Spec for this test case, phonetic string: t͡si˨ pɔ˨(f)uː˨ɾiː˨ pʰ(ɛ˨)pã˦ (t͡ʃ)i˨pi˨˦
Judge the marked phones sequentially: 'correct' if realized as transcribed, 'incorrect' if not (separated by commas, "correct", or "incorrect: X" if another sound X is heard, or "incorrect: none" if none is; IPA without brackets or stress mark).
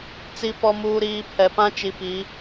incorrect: m, correct, correct